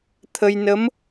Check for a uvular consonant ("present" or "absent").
absent